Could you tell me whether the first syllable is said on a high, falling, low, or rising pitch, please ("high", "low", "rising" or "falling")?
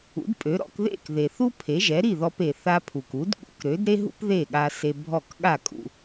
rising